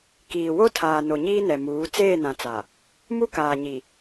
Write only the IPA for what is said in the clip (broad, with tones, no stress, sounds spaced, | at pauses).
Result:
k iː˨ w o˦ tʰ aː˨ n o˨ ɲ iː˦ n ɛ˨ m uː˨˦ t͡s eː˦˨ n ã˨ t͡s a˨ | m u˦ k aː˨ ɲ i˨